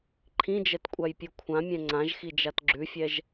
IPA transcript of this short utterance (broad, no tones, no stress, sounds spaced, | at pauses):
ǃʰ ĩ d͡ʒ ɛ t kʷʼ a j pʲ ʉ kʷʰ ã mʲ ɛ̃ ŋ͡ǀ ã ʒ x i d͡ʒ a t ɡ͡ǁ ʉ fʲ ɛ ʒ